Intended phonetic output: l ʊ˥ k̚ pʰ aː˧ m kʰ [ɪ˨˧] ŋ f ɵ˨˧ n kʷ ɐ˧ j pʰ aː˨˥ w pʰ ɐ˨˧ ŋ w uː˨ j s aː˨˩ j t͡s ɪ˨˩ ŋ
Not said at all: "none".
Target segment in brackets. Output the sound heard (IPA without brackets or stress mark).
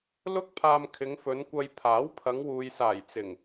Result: ɪ˨˧